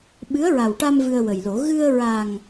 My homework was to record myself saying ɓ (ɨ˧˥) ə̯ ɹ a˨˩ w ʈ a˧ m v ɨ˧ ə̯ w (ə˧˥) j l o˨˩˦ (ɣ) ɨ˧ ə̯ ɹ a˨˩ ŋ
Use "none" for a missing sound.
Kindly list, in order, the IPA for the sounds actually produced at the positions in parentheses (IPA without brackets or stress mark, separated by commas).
ɨ˧˥, ə˨˩, ɣ